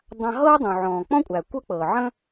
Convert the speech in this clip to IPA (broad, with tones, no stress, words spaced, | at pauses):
dˤã˧ɦɤː˥dˤũ˩ ʕɔ̃ː˩k͡pɔ̃˥kʷʼæ˩ kʷɤ˥k͡pɤː˩ ʕə̃˥